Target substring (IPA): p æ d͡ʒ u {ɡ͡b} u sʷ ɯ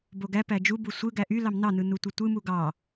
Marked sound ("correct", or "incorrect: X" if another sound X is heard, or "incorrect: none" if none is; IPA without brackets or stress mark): incorrect: b